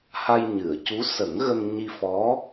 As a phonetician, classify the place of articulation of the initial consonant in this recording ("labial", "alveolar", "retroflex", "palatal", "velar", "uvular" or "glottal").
glottal